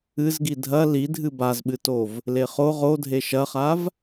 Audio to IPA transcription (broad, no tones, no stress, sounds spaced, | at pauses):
ɨ z ɡ i dʱ ɐ l i dʱ ɨ b a z ɓ ɨ t o v | l e χ o ʁ o dʱ e ʃ ɐ χ a v